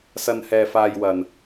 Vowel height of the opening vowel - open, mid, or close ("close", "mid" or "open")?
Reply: open